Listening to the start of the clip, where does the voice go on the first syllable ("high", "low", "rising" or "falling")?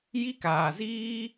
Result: high